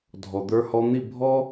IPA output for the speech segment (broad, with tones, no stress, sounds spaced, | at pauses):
dʱ ɔ˨ d̪ ə˞˧ h ɔ˧ n̪ i˦˨ bʱ ɔ˦